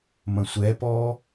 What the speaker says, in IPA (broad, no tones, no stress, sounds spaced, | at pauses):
m ɐ̃ sʷ ɛ p ɔ